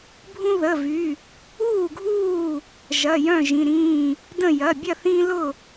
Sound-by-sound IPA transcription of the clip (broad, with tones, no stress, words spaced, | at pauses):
bʱũ˦ðə˩˧˩vy˩˧˩ | uː˥˨ɡʱuː˥˨ | ʒɐ˩˧˩jœ̃˥˨ʒĩ˩˧˩ɾĩː˥˨ | də̃˥˨ jɐ˩˧˩bʲɐ˥˨ θĩ˦lʊ˥˨